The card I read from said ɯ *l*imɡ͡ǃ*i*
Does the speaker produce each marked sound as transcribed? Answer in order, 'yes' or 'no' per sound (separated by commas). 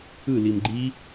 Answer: yes, yes